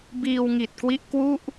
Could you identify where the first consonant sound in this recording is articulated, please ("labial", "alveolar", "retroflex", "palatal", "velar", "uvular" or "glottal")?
labial